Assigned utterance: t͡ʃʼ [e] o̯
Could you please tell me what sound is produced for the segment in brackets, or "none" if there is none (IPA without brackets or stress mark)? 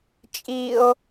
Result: i